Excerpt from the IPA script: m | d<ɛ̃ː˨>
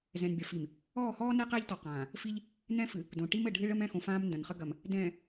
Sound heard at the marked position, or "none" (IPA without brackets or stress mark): ɛ̃ː˨